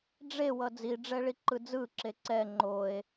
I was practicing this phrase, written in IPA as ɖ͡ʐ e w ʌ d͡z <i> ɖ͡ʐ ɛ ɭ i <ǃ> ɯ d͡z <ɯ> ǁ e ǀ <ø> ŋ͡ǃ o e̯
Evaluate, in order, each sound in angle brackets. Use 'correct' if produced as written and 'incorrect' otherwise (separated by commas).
correct, correct, correct, incorrect